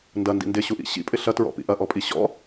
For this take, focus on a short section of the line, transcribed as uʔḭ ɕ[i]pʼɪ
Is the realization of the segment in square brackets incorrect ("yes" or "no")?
yes